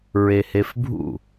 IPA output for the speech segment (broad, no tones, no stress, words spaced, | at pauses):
ɹehefbʱṵ